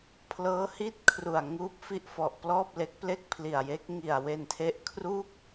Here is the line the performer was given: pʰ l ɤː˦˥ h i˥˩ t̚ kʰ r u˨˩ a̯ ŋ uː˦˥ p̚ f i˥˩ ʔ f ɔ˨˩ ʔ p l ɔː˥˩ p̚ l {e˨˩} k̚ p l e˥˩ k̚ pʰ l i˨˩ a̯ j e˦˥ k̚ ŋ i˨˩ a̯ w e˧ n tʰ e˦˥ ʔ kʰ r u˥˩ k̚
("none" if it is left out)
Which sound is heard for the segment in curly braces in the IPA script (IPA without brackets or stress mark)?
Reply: e˦˥